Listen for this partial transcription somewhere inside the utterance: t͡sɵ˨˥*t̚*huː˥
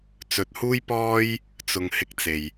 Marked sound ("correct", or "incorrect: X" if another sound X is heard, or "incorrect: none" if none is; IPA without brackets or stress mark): correct